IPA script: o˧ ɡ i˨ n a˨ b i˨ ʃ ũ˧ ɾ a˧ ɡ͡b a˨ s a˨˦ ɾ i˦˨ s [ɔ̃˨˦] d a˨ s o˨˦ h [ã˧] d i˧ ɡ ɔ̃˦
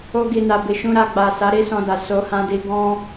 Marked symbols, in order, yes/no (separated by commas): no, yes